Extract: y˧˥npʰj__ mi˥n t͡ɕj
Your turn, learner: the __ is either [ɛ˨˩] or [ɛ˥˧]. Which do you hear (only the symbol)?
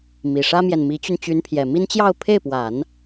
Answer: ɛ˨˩